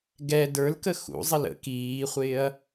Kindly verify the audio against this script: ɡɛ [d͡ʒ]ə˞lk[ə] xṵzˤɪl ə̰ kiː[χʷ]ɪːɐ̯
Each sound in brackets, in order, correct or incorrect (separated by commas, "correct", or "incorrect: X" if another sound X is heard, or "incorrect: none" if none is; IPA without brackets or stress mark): incorrect: d, correct, correct